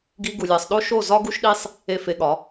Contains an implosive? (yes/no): yes